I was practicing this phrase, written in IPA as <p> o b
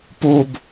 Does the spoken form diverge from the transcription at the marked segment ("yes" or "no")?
no